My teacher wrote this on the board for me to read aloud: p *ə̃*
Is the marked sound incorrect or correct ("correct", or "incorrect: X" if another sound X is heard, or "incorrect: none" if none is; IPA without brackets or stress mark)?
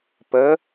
incorrect: ə